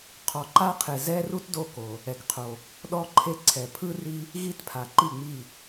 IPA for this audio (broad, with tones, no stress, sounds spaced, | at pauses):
qʰ ɔ˩ ǃ a˧ qʰ e˩ z ɛ˧ r u˧ t d o˧˩ k o˩ | ɛ˩ k qʰ o˩ | ɗ ɔ˧ ǃʰ e˧ ǀʰ ɛ˩ pʰ ɯ˧ r i˧ | ɣ i˧˩ t pʰ a˩ ǃ i˧˩ ŋ͡m i˧˩